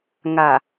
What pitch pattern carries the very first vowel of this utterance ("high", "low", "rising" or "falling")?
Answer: low